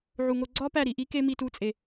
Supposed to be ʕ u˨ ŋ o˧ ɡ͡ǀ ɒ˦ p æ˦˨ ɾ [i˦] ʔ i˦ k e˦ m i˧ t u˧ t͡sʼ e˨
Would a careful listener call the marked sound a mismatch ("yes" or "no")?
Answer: yes